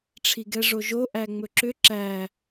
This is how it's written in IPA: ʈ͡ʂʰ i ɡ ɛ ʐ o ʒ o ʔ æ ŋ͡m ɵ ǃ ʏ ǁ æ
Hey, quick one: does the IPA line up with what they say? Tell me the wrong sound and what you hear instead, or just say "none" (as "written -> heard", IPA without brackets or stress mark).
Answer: ǃ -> ǁ